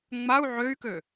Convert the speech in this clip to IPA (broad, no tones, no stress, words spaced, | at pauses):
ŋ͡mau̯ ʕøy̯kø